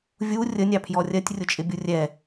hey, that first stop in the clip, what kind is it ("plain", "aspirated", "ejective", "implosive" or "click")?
aspirated